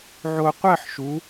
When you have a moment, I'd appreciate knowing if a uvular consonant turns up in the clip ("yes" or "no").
yes